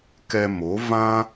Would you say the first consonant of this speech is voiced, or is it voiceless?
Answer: voiceless